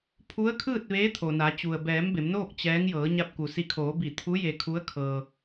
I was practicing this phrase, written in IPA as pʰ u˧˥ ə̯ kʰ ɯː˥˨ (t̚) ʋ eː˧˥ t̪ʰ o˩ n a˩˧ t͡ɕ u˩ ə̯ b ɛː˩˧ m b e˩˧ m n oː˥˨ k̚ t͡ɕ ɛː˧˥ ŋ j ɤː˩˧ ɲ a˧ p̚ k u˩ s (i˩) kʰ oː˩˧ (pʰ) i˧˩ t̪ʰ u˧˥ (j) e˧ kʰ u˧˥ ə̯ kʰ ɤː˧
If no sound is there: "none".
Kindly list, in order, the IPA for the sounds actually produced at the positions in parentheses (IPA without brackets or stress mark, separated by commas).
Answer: t̚, i˧, b, j